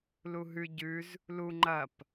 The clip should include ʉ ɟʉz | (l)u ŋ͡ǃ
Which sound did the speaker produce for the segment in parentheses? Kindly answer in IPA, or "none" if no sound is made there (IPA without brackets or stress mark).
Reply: l